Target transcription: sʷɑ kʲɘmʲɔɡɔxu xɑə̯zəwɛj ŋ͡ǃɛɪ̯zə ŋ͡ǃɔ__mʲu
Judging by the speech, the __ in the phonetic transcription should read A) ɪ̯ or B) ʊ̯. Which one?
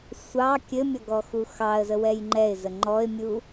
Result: A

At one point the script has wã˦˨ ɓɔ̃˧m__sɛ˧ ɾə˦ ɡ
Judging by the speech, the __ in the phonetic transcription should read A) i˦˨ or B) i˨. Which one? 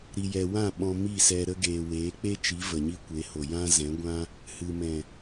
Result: A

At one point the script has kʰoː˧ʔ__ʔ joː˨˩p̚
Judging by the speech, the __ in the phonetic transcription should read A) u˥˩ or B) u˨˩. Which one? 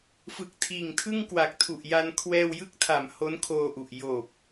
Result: B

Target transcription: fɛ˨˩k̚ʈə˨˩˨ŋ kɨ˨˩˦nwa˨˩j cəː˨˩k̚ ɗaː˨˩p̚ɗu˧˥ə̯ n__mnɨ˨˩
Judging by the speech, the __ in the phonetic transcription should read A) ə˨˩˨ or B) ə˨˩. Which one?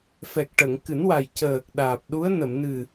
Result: A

